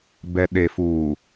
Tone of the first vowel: low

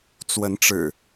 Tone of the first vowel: rising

